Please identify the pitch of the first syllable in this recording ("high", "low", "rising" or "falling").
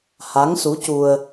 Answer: rising